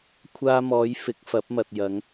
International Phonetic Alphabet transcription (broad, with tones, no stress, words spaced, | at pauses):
kʷʰaː˧mɔː˨˧j fɪ˨˥k̚fɐ˨˥p̚mɐ˨t̚ jɐ˨˧ŋ